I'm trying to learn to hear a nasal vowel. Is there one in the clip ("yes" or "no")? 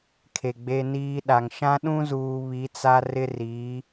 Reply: yes